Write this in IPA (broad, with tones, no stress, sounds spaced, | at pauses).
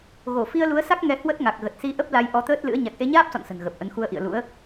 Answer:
ɣ o˧˩ f i˧ ə̯ l u˨˦ ə̯ s a˦˥ k̚ ŋ ɛ˧ h w ə˦˥ t̚ ŋ a˨˩ k̚ ɣ ə˨˩ t̚ s i˧ ʔ ə˦˥ p̚ l a˨˦ j ʔ ɔ˨˦ t̪ əː˦˥ t̚ l ɨ̰˧˥ ə̯ ɲ a˨˩ k̚ ʔ e˧ ɲ aː˦˥ p̚ s ɔ̰˧˨ n s ə̤˨˩ n ɣ ə˨˩ p̚ ʔ ə˨˦ n x u˧ ə̯ ʔ ḭ˧˨ ə̯ l ṵ˧˥ ə̯